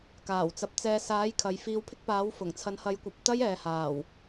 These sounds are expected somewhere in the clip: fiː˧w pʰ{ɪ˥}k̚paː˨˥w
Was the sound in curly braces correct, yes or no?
yes